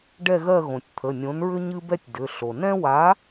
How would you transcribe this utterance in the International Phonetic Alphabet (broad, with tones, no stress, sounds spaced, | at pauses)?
ɖ ɛ˦˨ ɣ ɜ˦˨ ɣ õ˩ tʲ t̪ʰ ə˩˧˩ nʲ õ˨˥ n ɹ ʏ˦ ɲ ɨ˦ b ɛ˦ tʲ d ʏ˩˧˩ ɬ o˩ n ɛ̃˦ w a˨˥